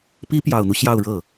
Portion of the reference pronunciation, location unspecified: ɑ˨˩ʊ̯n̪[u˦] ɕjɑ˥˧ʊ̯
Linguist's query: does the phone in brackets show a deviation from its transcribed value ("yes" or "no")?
no